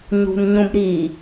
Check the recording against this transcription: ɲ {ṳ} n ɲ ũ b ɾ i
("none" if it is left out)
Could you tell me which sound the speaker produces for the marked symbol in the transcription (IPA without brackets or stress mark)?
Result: ṳ